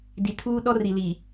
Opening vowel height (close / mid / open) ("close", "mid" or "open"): close